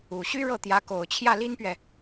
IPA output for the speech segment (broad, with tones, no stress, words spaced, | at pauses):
u˨˩ɕy˥ ɻɤ˥˩t̪jä˧˥ ko˨˩ʊ̯t͡ɕʰjä˥˩li˥npɥɛ˨